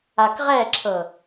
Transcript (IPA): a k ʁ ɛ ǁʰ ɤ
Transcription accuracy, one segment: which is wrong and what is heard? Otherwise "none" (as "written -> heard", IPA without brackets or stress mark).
none